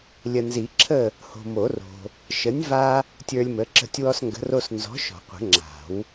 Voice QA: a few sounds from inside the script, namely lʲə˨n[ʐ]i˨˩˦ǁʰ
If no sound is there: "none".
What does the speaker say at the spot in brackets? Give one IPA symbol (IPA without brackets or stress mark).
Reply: z